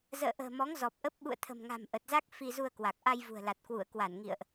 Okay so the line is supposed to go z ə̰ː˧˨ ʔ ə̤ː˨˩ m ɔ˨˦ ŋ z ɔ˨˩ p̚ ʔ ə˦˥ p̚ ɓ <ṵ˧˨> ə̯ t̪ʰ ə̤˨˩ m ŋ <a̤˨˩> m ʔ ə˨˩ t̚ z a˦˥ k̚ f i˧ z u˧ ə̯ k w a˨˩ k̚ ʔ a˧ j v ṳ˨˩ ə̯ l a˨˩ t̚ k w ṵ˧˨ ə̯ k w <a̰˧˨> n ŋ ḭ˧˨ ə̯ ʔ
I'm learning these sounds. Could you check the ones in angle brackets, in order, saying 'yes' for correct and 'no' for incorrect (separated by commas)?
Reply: yes, yes, no